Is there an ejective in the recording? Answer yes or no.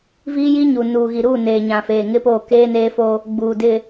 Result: no